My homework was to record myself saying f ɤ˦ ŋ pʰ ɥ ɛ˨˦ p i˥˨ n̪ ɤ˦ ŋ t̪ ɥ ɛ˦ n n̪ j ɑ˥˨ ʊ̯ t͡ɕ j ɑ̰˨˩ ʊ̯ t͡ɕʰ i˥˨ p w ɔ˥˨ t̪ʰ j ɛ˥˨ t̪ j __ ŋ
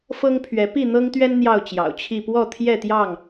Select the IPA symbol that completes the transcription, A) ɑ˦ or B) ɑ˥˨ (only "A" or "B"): B